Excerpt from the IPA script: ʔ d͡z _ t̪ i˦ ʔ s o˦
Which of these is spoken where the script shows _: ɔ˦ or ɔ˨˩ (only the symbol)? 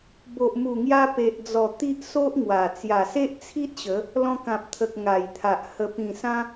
ɔ˨˩